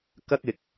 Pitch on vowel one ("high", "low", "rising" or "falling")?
high